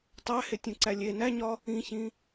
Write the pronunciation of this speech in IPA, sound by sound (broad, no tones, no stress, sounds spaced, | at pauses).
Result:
tˤ æ h e tʲ ũ ǀ æ lʲ e n æ ɲ ɒ | ĩ ç ĩ